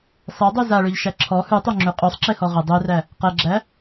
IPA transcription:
sˤ e dˤ ʉ z a ɭ ø ʎ ʃ æ ǁʰ ɔ h ʉ tˤ o ŋ͡ǁ ʉ qʼ ø sˤ ǁ e h ɔ ʁ ə dˤ ø r æ | q ɛ ɡ͡ǁ æ

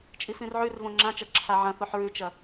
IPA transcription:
t͡ʃʼ i f ĩ r ʕ ʉ r v õ ŋ͡ǁ ã t͡ʃ ɐ ǁʰ a ʕ ɐ̃ θ o ħ ɹ ʉ t͡ʃ ɐ

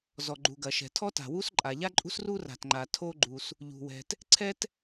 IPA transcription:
z ɔ˩ ɡ͡ǃ u˩ ɡ ɐ˩ ʃ ɛ̤˩ tʰ ɔ˥ t a̤˩ w u˥ s ǃʼ a˩ ʎ a˥ ǃʼ ṳ˥ s r u˥ r a̤˩ t ŋ͡ǃ a˩ tʰ o˥ ɡ͡ǃ u˩ s | ʎ ṳ˩ w ɛ̤˩ t | ǀʰ ɛ˥ t

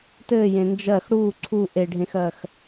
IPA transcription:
t ɘː j ẽ n d͡ʒ ɜ x ɽ uː ǀʰ u ʔ e ɖʱ ẽ x ɜ x

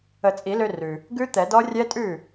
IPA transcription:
ə˨˩˦ t͡sʼ i˨˩˦ l ø˧ r ʉ˩ | ɡ ʉ˦˥ t̪ ɛ˨˩˦ d ɔ˦˥ rʲ ɛ˦˥ tʼ ʉ˥˩

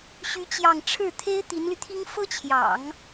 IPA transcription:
ɕ y˥ t͡ɕ j ɑ˥˧ ŋ ʈ͡ʂʰ ɻ̩˥˩ t̪ʰ e˥ ɪ̯ t̪ i˧˥ n l y˧ t̪ʰ i˥ ŋ f ɤ˥ t͡ɕʰ j ɑ̰˨˩˦ ŋ

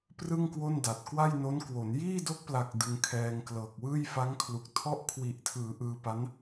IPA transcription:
p r ɯ˥˩ ŋ k w o˥˩ n d a˨˩ t̚ k w a˥˩ j n o˦˥ n k w o˩˦ n j iː˥˩ d o˦˥ k̚ p l a˨˩ k̚ d ɯ˧ ŋ kʰ ɛː˧ ŋ k l ɤː˨˩ k̚ w ɯː˥˩ j f a˦˥ ŋ kʰ l u˨˩ k̚ tʰ ɔ˥˩ ʔ kʰ w i˨˩ ʔ tʰ ɯː˩˦ ʔ ɯː˧ p a˦˥ n

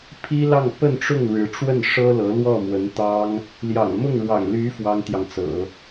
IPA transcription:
pʰ i˥ l ɑ˥˧ ŋ p ə˥˧ n ʈ͡ʂ ʊ˥˩ ŋ ɻ ɻ̩˧˥ ʈ͡ʂ w ə˥˩ n ʂ ɤ˥ l ɤ˧˥ l w ɔ˥˩ m w ə˧˥ n t̪ ɑ˥ ŋ | l j ɑ̰˨˩ ŋ m ʊ˥˩ ŋ ɻ w ɑ̰˨˩ ŋ l y˧˥ f w ɑ˥ ŋ t̪ j ɑ˨ ŋ t͡s ɤ̰˨˩˦

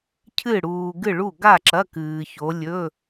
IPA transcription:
cʰ ɨ˥˨ ɽ uː˧ ɡ ɨ˥˨ ɭ u˥˨ ɡ a˥˨ ǁ ɐ˧˥˧ k ɨː˧ ç o˧˥ lʲ ɵ˧˥˧

